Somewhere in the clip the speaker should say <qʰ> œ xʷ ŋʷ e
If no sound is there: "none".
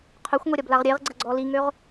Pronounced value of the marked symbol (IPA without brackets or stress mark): qʰ